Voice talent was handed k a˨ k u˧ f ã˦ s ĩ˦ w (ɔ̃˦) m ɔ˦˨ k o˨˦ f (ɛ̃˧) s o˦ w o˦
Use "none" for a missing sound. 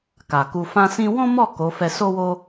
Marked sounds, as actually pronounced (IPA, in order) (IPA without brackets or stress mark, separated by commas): ɔ̃˦, ɛ˧